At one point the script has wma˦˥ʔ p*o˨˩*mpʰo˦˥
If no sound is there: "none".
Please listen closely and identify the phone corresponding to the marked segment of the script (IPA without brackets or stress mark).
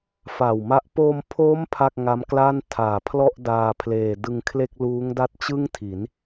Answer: o˧